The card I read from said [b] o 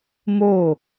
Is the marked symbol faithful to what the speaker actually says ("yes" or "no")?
no